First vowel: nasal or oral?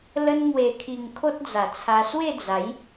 oral